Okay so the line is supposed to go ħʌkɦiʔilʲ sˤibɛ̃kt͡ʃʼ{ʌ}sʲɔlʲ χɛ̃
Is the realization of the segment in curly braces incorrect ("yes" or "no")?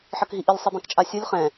yes